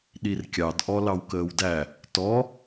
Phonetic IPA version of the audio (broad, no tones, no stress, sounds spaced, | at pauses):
ɗ i r kʲ ɑ d ʔ ɔ l ɑ w k əː w d æ | t ɔ